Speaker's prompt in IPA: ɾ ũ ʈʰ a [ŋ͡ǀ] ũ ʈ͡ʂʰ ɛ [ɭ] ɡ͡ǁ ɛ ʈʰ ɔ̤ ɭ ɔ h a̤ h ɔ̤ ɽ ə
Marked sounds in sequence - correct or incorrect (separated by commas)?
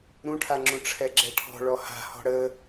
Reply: incorrect, incorrect